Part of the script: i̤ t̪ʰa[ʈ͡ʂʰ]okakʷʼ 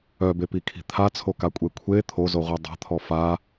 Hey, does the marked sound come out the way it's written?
no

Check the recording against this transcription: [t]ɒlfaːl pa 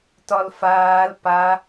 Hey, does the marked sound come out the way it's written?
yes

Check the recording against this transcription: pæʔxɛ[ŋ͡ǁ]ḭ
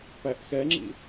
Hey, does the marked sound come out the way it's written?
yes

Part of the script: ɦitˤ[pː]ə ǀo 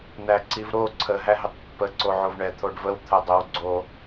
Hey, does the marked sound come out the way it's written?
yes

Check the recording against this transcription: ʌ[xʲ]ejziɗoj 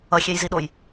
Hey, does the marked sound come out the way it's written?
yes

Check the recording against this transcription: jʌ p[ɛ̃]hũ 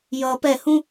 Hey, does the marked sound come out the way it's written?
no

